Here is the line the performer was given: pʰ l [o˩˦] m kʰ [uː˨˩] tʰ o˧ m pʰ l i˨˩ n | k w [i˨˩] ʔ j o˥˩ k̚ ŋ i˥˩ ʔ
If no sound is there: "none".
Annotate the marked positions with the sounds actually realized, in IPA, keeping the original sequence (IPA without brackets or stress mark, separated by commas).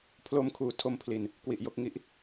o˧, uː˨˩, i˨˩